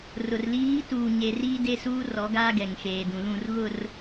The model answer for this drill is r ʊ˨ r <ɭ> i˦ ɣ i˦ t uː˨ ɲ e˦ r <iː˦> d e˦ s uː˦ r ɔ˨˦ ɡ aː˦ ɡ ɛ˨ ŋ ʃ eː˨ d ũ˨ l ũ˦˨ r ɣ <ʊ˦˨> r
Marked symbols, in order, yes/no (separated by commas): no, yes, yes